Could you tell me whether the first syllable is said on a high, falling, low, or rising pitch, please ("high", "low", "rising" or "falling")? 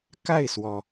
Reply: falling